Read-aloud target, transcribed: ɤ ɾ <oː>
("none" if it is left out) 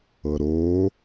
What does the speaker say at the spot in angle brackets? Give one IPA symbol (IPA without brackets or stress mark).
oː